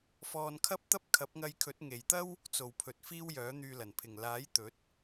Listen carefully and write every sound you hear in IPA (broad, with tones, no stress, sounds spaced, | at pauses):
f ɔː˧ n kʰ ɐ˥ p̚ t̪ ɐ˥ p̚ kʰ ɐ˨˥ p̚ ŋ ɐ˧ j kʰ ɵ˨˥ t̚ ŋ e˨ j t̪ ɐ˥ w | t͡s o˨ w pʰ ɵ˨ t̚ f iː˥ w j œː˨˥ n̪ yː˧ l ɐ˨˩ n pʰ ɪ˨˩ ŋ l aː˨˥ j t̪ ɵ˨˥ t̚